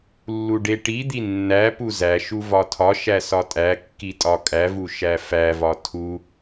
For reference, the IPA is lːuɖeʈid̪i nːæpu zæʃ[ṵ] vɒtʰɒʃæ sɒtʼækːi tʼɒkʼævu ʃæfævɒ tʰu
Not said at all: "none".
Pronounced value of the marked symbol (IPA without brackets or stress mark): u